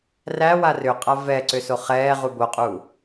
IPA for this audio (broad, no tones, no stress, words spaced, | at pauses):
ræ warʏqʼa vɛǀʏ soχɛːʁu boqʼu